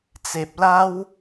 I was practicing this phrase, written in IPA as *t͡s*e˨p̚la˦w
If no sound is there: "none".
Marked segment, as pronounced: t͡s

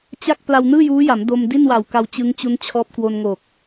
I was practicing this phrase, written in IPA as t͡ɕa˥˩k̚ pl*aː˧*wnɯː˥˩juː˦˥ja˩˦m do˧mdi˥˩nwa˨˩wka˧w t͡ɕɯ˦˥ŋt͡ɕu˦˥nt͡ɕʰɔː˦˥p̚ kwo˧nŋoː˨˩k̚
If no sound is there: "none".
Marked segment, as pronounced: a˧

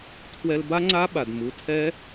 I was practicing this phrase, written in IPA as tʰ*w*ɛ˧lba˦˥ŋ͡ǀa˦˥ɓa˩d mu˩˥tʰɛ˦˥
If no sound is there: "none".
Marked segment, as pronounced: w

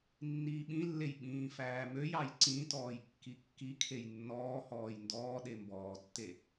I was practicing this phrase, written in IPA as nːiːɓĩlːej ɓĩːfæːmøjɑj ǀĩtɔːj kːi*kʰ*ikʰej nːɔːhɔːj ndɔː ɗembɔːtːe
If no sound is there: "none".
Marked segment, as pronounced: kː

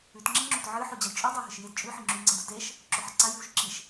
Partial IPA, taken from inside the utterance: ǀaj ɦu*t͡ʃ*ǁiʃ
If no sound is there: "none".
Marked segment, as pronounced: ʃ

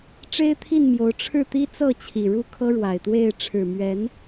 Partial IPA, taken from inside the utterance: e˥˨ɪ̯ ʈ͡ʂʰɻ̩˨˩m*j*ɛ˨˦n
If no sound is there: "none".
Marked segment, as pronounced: ɥ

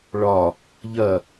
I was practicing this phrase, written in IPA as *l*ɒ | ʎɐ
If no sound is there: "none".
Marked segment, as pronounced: ɭ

